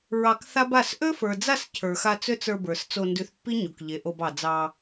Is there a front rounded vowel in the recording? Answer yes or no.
yes